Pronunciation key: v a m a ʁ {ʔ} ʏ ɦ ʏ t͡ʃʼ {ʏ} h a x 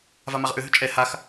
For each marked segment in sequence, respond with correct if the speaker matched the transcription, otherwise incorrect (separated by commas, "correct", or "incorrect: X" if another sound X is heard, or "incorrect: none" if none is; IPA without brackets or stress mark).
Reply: correct, incorrect: ɛ